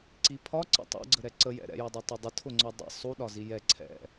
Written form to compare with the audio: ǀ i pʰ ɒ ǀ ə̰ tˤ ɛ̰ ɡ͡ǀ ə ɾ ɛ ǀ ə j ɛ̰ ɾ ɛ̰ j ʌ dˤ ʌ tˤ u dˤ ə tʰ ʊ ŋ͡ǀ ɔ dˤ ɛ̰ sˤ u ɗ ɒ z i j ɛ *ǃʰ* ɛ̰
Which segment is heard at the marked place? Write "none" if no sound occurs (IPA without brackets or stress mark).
ǀʰ